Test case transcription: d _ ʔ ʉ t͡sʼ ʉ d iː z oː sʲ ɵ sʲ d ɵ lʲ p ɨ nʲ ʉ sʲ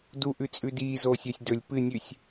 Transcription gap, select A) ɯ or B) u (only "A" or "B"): B